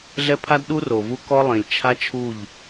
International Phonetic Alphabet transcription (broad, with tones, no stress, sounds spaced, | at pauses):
ɮ ɛ˦ pʰ a˦ d ɗ u˦ r o˨ v u˦ k ɔ˦ lˠ ĩ˨ lʲ t͡ʃʰ a˦ t͡ʃʰ u˦˨ ʎ